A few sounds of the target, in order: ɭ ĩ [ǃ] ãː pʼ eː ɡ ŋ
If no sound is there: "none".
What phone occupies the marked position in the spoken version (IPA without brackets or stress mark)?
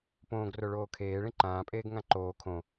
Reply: ǃ